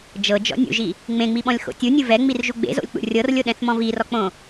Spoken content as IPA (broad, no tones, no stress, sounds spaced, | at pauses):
d͡ʒ ɤ d͡ʒ ɔ̰ nʲ ṵ ʒ i | ŋ͡m ẽ ŋ͡m i ɓ ɔ̃ lʲ x o̰ tʲ u nʲ ɯ v ɛ ŋ͡m i r ʒ u ɡ͡b ḛ z o̰ lʲ k͡p ṵ rʲ ɤ r lʲ o ɗ ɛ̃ θ m ɔ̃ v i r ɔ k͡p õ